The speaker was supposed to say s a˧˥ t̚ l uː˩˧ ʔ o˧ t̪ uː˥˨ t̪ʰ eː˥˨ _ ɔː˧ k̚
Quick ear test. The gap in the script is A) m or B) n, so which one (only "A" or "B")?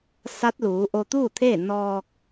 B